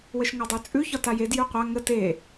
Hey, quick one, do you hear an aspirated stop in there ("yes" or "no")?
no